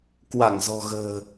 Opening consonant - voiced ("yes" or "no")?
no